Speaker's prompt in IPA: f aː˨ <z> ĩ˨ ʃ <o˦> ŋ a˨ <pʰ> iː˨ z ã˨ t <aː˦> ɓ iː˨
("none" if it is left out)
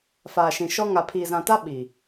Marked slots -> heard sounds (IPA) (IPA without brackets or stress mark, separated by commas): ʃ, ɔ˦, pʰ, a˦